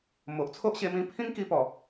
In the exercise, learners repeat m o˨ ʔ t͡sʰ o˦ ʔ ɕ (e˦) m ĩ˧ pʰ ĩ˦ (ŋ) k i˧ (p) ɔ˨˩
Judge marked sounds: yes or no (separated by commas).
no, yes, yes